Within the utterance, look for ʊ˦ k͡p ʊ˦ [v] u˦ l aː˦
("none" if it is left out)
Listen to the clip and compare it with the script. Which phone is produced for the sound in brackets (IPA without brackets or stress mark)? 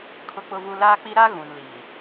v